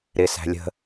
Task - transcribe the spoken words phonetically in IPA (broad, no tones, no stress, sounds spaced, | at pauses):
ɾ ɪ s æ̤ lʲ ə̤